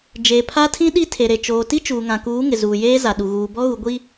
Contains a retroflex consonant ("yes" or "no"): no